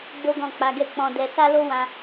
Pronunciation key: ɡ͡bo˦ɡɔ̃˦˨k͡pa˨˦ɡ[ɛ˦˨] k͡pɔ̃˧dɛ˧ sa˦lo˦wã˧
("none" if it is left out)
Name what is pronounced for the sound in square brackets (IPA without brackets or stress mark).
ɛ˦˨